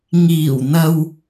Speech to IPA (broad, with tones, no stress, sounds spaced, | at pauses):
ŋ iː˨˩ w n̪ ɐ˨ w